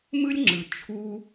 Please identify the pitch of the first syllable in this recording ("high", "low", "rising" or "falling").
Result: high